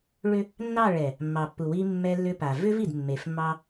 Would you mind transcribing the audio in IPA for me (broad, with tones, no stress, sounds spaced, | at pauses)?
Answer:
ɭ ʏ˦ | nː ɑ˦˨ ɭ ɛ˨ | mː ɑ˨ pː u˨ w i˦ mː ɛ˦ lː ʏ˦ p a˨ v ʏ˦ v i˨ d mː e˨ f mː ɑ˦